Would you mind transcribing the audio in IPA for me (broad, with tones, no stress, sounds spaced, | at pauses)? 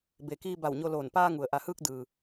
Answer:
b e˩ k iː˧ b a˧˩ w ɲ o˧ l oː˧˩ n p aː˧ ŋ u˩ ə̯ ʔ a˩ h ɯː˧ k̚ d ɯː˩